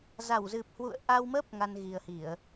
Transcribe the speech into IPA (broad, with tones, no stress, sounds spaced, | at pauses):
z a˧˩ w z ɨ˨˩ p̚ h w ṵ˧˨ ə̯ ʔ a˧ w m ə˦˥ p̚ ŋ a˧ n ɣ i˨˩ ə̯ h i˧˩˨ ə̯